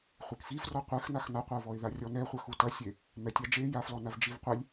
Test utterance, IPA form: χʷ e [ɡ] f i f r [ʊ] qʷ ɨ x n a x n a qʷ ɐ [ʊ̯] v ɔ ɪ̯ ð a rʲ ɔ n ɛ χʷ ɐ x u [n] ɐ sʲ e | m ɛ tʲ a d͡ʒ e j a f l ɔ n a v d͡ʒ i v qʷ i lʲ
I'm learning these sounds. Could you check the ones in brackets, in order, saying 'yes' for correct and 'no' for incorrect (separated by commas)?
no, no, yes, no